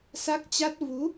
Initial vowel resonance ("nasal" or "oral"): oral